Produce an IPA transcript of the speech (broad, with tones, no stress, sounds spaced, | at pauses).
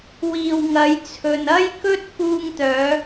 w iː˨ w ŋ ɐ˨˧ j t͡sʰ ɵ˨ n ɐ˥ j k ɵ˥ t̚ f uː˧ ŋ t̪ œː˨˧